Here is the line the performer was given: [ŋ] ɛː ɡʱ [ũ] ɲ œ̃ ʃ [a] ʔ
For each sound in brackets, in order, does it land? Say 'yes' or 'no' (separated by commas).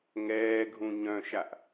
yes, yes, yes